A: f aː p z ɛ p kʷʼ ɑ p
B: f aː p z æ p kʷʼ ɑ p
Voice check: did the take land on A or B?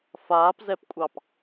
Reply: A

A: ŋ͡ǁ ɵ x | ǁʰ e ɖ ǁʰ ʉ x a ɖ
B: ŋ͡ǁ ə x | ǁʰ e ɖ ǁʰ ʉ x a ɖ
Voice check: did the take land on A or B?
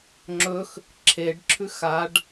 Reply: A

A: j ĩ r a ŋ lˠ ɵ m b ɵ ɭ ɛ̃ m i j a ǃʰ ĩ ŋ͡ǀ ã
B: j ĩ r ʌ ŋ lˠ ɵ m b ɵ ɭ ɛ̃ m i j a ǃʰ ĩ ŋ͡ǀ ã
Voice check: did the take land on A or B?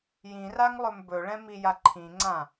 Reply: A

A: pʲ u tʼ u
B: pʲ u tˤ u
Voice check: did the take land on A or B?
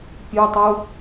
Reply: B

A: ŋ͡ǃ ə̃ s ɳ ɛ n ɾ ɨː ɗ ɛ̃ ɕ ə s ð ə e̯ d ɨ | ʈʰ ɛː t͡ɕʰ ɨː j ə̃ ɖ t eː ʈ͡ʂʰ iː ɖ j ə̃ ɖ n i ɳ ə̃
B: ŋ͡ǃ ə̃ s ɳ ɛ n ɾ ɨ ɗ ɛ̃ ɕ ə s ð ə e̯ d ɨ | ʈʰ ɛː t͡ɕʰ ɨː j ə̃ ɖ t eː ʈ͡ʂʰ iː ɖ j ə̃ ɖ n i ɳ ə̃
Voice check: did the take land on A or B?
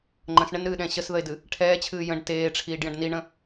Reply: A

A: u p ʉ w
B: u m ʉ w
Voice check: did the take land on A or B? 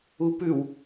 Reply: A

